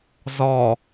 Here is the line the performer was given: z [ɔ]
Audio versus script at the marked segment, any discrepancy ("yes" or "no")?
no